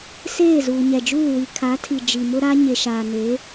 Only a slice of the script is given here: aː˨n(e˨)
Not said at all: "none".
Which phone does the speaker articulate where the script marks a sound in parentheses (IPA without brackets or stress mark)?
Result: e˨˦